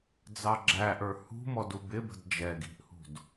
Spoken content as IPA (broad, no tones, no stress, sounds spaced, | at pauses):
d͡z ɑ ɡ͡ǁ æ ʔ ə˞ h ṳ m ɔ d u b ɪ b ə̤ d d͡ʒ ɛ ɡ i̤ ʔ h ṳ d